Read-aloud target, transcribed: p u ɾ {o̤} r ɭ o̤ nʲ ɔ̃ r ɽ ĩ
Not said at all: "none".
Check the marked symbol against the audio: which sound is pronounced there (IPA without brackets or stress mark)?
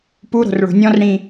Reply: o̤